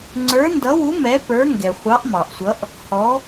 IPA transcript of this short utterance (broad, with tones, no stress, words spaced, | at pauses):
ŋ͡ǀə˞˨˥ndʌ˨˥wu˨˥ mɛ˨˥pə˞˨˥ŋɡɛ˩ χʷɑ˨˥ʔmɑ˩ʔsʷʌ˨˥ʔ | hɔ˨˥